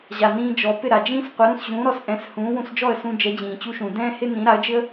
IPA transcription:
ʑa˩nĩː˧d͡ʒɔ˩ pɪ˥˩ɾa˩d͡ʒĩː˥sqʷə˩˥ ɾũ˥˩sʑũː˩˥ɾɔ˩s ʔɛ̃˩˥shũː˩˥ wũ˧sd͡ʒɔ˥˩ə̯sũ˧ d͡ʒɛ˩˥d͡ʑĩː˩t͡ɕu˧ʃũ˩ dɛ̃ː˥hɪ˥ nĩ˩˥ɾa˩˥ə̯d͡ʒɪ˥ə̯

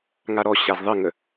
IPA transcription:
ŋaɾɔ ɕazðˤɘŋə

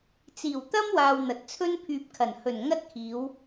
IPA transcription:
t͡siː˨˩wt̪ɐ˥mwaː˨w n̪ɐ˨t̚t͡sʰɵ˥npʰyː˧p̚kʰɐ˨˩n hɵ˨˩n ŋɐ˥t̚kʰiː˨˧w

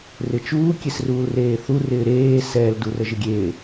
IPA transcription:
rɪt͡ʃuː kʲesruːlreːθu rɪːɾeː sɛːl durəʒɪɡʲeː

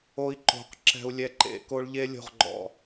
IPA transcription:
o˦i̯ǃo̤˨˦q ǁɛ̤˧u̯lʲɛ˧ǃḛ˨˦ ko˧ɭʎe˧ lʲo̤˨ʁɡ͡ǃɔ̰˨

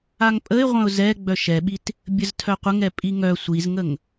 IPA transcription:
aŋpʼəɪ̯ ʁʷœ̃ʊ̯zɛ ɡ͡bœʃɛɓit | bʲəztʰœqʷəŋɛ pʼiŋœ sʷizŋəŋ

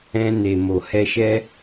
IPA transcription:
ɛ̃˧ne˨ mo˨hɛ˧ʃɛ˦

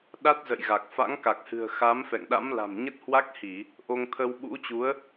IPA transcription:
ɗa˦˥t̚zə̰˧˨jɣa˨˩k̚ fa̰˧˥ŋka˨˩k̚hɨ̤˨˩ə̯ xa˨˦mfɛ̰˧˨ŋɗa̰˧˥m la̤˨˩mɲə˦˥t̚hwa˦˥k̚hi˧˩˨ | ʔo˧ŋt̪ʰə˧w ɓṵ˧˥t͡ɕu˨˦ə̯

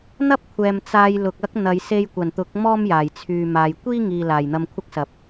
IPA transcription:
n̪ɐ˥p̚kʷʰɛː˨m t͡saː˧jlʊ˨k̚ ɐ˥k̚ n̪ɐ˨˧j se˧jkʷɐ˨˩nt̪ʊ˨˥k̚ mɔː˥mjaː˨˩jt͡sʰyː˨maː˨j kʷiː˥ŋiː˨ laː˨˩jn̪ɐ˧mkʷʰɐ˥k̚sɐ˨˥p̚

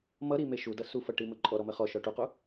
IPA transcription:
mʌɾime ʃudʌ sufʌʈimə ǃʼɔɾɔmə χɔʃɔ ʈuqu

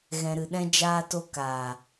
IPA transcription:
ɣɛ̃˨ɾɨ˨ɗɛ̃˧ d͡ʒaː˧to˧ kaː˨

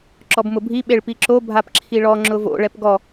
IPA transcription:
ǁɔbmʊbʱi ɓeɭpiǁo bʱapǁʰiɭɔ ŋ͡ǁʊvo̰ ɭɛpɡɔ

